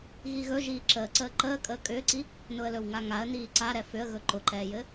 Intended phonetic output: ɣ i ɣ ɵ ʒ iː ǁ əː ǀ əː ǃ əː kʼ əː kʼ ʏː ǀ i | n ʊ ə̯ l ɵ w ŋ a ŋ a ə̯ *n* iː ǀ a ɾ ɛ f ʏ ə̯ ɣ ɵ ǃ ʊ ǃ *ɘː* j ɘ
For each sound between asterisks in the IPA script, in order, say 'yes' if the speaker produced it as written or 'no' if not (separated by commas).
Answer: yes, no